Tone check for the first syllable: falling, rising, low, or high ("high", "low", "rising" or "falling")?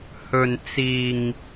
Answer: low